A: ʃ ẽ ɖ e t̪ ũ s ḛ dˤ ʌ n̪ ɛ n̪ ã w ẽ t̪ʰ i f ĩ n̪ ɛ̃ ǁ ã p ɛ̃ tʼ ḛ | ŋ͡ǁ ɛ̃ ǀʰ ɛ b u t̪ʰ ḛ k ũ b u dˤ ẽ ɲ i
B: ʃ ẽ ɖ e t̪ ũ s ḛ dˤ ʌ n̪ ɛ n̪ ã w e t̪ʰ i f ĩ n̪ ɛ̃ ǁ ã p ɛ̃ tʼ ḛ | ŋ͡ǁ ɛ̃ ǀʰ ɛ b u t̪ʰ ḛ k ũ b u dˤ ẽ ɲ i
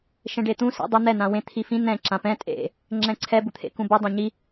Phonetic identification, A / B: A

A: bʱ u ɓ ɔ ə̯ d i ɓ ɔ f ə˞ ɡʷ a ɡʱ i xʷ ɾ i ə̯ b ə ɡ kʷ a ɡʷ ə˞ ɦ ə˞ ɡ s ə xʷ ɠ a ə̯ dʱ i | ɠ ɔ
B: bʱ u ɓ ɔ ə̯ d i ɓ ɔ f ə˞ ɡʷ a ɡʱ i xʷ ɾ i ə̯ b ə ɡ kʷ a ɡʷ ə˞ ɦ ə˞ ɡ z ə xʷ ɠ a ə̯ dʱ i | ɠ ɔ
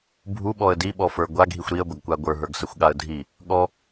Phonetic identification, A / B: A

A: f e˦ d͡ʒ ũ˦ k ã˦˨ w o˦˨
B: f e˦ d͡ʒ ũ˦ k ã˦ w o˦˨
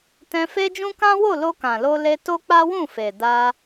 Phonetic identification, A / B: B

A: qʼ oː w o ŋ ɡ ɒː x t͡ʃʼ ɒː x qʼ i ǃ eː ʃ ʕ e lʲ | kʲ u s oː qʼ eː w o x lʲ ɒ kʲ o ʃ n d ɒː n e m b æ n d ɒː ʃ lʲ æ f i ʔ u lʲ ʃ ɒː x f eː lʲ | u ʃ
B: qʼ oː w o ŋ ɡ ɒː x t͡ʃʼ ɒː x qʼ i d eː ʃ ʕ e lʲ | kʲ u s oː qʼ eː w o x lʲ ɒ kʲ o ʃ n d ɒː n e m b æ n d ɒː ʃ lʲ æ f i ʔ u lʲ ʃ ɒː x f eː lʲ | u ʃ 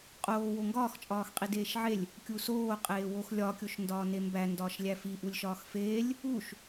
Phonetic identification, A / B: B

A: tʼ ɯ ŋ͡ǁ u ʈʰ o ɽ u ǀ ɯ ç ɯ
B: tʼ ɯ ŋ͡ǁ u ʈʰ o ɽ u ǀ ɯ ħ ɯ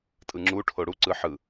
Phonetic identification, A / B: B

